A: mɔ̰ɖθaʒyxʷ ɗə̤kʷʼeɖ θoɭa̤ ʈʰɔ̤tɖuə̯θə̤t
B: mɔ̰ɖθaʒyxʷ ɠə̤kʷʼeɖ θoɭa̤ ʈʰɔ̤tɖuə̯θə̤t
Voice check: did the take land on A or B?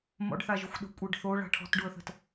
A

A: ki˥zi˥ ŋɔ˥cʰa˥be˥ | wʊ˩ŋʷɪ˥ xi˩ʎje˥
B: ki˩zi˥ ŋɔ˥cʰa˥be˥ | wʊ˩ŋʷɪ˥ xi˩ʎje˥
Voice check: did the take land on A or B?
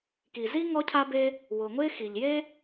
B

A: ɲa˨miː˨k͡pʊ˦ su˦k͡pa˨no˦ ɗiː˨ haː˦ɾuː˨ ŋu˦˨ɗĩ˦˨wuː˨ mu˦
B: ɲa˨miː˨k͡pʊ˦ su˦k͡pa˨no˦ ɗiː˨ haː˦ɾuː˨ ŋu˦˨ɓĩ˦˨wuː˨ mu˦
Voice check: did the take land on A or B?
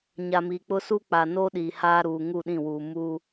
A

